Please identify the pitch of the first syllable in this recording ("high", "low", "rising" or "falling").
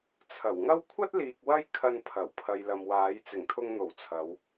low